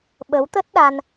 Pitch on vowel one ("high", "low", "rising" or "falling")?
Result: rising